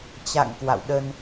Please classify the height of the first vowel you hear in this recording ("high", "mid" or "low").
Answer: low